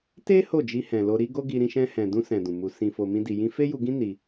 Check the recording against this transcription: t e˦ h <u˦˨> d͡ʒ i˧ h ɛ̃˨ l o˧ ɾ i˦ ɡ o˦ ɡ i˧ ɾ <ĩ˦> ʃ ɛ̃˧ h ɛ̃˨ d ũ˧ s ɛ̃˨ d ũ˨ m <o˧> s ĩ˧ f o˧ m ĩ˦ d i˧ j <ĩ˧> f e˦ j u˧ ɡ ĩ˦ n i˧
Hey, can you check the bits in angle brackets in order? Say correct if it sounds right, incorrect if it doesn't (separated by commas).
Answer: incorrect, incorrect, incorrect, correct